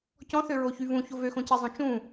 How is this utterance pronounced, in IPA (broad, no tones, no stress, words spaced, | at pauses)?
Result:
cɔ̃θøɹoçy vũço vøxõcezˤõ t͡ʃũ